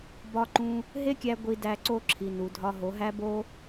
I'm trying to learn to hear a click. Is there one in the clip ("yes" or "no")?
yes